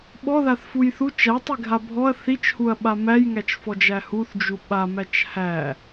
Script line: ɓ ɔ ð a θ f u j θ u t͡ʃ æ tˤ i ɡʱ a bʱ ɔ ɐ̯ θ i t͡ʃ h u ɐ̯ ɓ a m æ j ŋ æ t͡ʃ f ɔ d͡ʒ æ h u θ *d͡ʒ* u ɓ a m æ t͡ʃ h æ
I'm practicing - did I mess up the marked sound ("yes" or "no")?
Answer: no